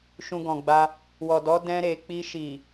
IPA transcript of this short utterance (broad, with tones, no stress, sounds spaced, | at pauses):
ʃ ũ˧ ɡ ɔ̃˨ ɡ͡b a˧ | w ɔ˨ d ɔ˨˦ d ɛ̃˧ ɾ e˨ k͡p i˧ ʃ i˨